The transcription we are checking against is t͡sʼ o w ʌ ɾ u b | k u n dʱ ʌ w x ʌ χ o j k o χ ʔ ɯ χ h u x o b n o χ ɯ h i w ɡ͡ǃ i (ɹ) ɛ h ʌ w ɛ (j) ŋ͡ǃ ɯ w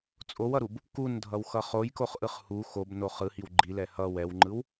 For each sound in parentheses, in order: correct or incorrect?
incorrect, incorrect

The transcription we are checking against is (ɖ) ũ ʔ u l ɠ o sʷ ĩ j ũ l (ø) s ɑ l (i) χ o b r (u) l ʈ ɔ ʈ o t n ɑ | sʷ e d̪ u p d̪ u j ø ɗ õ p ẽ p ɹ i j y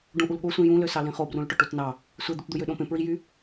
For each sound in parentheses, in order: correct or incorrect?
correct, correct, incorrect, incorrect

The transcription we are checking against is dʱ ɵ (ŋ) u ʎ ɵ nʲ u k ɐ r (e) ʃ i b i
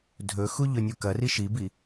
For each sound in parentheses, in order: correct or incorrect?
incorrect, incorrect

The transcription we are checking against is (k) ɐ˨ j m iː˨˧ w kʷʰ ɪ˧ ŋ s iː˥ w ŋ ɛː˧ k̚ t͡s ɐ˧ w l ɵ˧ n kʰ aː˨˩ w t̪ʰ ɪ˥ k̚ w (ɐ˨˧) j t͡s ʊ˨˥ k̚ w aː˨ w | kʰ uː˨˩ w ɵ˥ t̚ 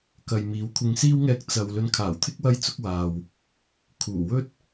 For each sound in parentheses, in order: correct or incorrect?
correct, incorrect

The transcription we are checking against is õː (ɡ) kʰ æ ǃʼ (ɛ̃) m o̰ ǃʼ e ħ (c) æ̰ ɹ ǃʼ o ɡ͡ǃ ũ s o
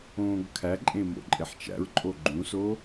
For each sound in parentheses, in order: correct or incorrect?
correct, incorrect, incorrect

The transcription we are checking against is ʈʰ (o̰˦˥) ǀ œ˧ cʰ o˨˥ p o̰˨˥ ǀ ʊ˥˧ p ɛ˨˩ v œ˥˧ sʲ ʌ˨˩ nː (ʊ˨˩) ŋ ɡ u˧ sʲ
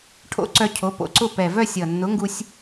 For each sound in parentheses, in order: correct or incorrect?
correct, incorrect

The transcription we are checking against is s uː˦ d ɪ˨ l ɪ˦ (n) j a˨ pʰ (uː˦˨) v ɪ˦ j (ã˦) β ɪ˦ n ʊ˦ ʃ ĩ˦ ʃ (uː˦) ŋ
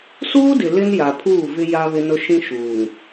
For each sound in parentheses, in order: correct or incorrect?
correct, correct, incorrect, incorrect

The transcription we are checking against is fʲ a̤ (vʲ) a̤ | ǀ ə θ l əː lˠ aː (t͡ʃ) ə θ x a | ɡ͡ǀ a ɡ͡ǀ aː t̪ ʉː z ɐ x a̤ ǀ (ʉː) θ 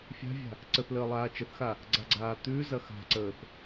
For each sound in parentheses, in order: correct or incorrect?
correct, correct, incorrect

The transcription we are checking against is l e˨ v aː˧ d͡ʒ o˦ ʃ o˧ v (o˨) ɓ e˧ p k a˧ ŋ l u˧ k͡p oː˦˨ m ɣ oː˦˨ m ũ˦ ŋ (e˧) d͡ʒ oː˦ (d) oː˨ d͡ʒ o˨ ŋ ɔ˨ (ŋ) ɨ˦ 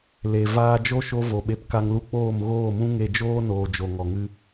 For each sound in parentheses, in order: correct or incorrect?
correct, correct, incorrect, correct

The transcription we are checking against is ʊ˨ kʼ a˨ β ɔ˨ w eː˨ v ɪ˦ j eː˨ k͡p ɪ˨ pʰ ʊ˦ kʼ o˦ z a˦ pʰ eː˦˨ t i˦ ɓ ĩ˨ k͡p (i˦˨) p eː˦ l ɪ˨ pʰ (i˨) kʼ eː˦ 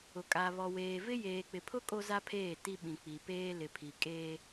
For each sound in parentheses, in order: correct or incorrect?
incorrect, correct

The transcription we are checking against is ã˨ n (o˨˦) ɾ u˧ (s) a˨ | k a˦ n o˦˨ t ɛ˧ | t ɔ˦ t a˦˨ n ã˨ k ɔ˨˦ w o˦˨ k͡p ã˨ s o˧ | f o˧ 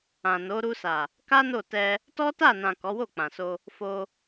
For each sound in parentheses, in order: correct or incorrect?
correct, correct

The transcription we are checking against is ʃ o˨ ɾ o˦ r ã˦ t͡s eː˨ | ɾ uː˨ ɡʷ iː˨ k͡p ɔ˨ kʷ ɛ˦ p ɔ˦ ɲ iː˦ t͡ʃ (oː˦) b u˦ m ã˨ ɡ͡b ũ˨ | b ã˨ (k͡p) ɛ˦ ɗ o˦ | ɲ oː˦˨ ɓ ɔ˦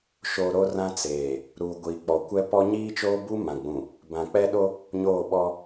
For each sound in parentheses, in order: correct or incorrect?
correct, correct

